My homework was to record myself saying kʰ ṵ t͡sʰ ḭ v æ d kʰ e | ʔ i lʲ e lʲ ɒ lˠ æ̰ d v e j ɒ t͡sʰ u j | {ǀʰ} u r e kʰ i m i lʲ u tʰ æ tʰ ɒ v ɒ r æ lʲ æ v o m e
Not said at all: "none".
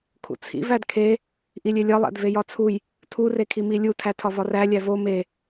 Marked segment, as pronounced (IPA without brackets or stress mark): tʰ